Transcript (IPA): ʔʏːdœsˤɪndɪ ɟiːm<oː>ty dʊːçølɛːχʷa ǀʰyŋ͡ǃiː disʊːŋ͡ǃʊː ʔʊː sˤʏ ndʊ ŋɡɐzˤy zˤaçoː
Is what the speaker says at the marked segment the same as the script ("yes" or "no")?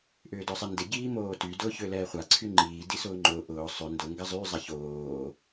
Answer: yes